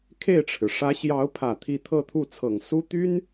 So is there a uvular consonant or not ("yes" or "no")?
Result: no